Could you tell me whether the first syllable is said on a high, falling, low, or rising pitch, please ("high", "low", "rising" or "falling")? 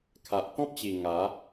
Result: low